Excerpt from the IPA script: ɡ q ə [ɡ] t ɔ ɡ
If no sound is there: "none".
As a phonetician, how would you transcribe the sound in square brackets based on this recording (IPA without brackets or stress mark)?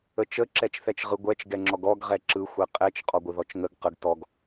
ɡ